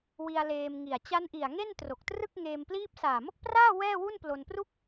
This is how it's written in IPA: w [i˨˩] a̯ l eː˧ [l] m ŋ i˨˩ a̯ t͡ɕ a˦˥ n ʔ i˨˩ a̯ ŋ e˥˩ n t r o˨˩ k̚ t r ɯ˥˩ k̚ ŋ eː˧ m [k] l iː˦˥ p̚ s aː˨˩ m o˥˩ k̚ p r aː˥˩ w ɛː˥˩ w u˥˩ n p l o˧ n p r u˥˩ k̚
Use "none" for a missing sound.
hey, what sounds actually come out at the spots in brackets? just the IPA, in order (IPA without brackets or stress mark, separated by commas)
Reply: i˧, none, p